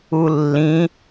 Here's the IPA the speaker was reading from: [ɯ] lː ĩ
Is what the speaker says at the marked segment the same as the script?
no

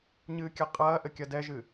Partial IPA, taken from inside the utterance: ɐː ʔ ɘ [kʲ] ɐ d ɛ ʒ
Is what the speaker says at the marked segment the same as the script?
yes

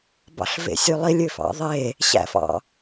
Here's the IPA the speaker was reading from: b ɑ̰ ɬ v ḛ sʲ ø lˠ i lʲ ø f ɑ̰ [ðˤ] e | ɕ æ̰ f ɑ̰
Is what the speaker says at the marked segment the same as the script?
yes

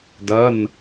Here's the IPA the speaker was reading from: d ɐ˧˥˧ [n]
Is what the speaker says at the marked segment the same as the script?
yes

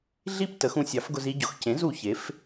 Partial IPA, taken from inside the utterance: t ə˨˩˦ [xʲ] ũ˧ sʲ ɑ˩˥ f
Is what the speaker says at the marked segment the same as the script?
no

